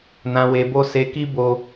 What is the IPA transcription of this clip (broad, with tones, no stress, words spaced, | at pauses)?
nã˧we˧bo˦ se˧ki˦ bo˧